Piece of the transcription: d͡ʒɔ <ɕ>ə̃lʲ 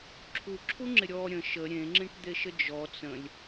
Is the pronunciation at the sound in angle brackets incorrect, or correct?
incorrect